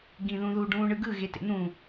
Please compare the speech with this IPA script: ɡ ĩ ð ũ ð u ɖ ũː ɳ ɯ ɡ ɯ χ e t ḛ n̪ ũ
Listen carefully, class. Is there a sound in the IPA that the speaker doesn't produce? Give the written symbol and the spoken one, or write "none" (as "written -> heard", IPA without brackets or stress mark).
χ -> ɣ